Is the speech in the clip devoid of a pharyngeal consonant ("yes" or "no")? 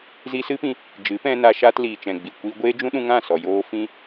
yes